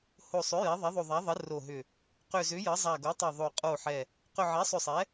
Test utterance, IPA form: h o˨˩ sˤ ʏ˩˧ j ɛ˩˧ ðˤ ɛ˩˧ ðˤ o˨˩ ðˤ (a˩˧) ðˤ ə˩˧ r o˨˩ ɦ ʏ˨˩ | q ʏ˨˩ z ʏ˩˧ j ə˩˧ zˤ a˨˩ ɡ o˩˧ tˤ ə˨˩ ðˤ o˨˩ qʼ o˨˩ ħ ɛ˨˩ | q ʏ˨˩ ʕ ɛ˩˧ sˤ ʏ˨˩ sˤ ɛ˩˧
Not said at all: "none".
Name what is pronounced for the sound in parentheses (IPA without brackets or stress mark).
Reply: a˩˧